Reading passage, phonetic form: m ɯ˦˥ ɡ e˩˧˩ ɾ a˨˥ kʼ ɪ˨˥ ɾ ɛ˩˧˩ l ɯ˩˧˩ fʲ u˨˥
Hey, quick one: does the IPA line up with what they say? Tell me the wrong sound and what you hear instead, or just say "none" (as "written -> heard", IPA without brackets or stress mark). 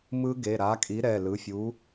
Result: ɪ˨˥ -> i˨˥